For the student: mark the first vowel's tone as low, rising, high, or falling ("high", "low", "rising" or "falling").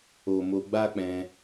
low